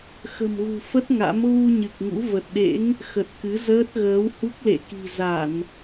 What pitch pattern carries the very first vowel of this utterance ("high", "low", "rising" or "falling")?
low